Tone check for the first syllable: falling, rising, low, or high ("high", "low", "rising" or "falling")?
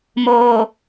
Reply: low